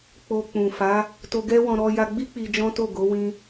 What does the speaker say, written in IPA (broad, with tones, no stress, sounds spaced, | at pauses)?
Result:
k͡p o˧ k͡p ũ˨ f a˨˦ | t o˧ ɡ ɛ˦ w ɔ̃˧ ɾ ɔ˧ j a˧ ɡ͡b i˦ k͡p i˧ d͡ʒ ɔ̃˦ t o˦˨ ɡ o˨˦ w ĩ˧